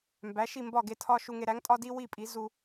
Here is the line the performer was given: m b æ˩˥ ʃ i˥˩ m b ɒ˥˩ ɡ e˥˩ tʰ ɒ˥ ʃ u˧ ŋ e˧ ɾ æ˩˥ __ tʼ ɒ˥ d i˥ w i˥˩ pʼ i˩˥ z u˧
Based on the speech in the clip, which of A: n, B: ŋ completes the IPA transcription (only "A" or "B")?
B